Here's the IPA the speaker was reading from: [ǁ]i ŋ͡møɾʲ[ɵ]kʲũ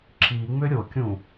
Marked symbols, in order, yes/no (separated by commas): yes, no